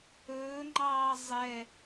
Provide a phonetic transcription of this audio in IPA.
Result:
ɵː ŋ͡ǃ ɑː zˤ ɛ

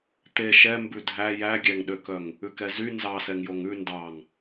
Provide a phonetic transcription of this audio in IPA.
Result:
t̪ e ʃ ɛ m b ʉ dʱ æ j æ ɡʲ æ ŋ ɗ ø k œ ŋ | ʉ k ɛ z y n z ɑ s ɛ ŋ j o ŋ ʉ n d ɑ ŋ

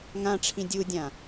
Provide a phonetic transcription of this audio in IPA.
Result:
ŋ ã ʈ͡ʂʰ ĩ dʲ u dʲ ã

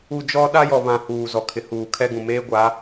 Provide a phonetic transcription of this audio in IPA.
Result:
u˨ d͡ʒ ɔ˦ ɗ a˦ j ɔ˨ β ã˨ h uː˨ z ɔ˨ kʰ ɪ˨ h uː˨ kʰ ɛ˦ ɡ ũ˨ m eː˦ ɡʷ a˨˦

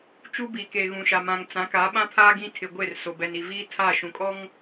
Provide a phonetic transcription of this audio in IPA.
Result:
t͡ʃ u˦ b i˨ k e˨ ɣ ũ˨ ʃ a˨ m ã˨ ŋ t͡s ã˨˦ k a˨˦ ɓ ã˦ pʰ aː˦ ɡ ĩ˦ tʰ ɪ˨ ɡʷ e˦˨ r s o˨ b ɛ˨ n i˨ v iː˦ tʰ a˦˨ ʃ ũ˨ kʼ ɔ˦ ŋ

